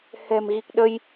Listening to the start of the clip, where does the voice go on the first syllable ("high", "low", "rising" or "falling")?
low